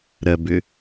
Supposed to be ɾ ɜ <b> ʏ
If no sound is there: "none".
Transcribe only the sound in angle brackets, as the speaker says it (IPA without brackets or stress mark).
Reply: b